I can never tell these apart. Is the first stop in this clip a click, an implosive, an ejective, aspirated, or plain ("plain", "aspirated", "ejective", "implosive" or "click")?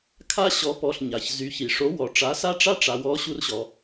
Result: aspirated